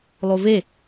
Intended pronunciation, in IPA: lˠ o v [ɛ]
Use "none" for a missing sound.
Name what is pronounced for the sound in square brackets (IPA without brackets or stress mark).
e